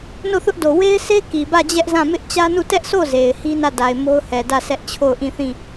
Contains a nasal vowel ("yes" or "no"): yes